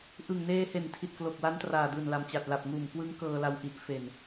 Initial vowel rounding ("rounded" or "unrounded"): unrounded